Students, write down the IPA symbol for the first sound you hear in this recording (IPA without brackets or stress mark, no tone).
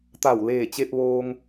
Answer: t̪